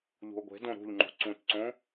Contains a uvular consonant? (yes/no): no